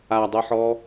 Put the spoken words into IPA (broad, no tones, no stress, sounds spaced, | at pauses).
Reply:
a dˤ ɯ ħ ɔ